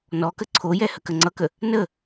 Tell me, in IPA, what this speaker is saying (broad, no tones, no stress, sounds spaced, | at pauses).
n ɔ k ə ǀʰ o j ɛ h ə k ə ŋ͡ǀ ʌ k ə | n ə